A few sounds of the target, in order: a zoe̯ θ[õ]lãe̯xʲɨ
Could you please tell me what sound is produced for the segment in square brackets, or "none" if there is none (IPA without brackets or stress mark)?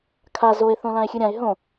õ